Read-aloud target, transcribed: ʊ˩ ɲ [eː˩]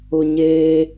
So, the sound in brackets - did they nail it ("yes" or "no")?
yes